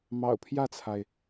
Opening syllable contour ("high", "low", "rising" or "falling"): low